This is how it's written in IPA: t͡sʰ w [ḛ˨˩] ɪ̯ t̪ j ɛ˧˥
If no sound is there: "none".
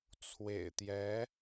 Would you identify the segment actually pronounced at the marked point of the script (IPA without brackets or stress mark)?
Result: ḛ˨˩